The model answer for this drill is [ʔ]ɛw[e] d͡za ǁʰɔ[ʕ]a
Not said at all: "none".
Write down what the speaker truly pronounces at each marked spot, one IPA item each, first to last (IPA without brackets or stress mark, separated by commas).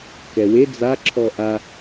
k, e, ʔ